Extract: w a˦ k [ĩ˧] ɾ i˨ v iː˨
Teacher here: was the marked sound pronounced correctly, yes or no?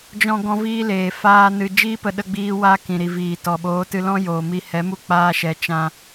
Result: no